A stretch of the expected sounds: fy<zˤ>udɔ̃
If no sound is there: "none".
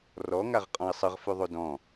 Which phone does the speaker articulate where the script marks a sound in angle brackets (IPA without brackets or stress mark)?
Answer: ðˤ